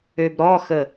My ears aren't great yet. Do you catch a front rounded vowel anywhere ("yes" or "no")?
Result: yes